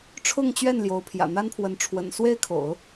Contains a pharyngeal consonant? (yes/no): no